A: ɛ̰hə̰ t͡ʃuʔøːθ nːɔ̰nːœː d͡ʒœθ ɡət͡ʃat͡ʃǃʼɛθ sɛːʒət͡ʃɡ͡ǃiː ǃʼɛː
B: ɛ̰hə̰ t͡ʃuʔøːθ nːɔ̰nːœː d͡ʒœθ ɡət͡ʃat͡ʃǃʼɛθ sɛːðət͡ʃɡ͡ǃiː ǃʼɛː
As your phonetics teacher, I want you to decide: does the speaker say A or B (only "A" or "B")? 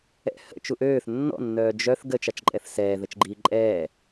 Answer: B